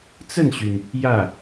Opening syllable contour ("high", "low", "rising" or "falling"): falling